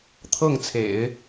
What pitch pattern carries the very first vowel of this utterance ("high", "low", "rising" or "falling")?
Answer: falling